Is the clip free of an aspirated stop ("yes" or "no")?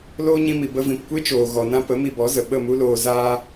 yes